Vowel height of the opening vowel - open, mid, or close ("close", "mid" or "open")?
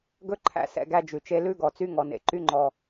mid